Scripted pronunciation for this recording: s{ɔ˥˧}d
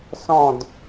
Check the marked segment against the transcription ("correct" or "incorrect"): incorrect